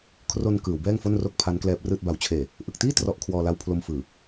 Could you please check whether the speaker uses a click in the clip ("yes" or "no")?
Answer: no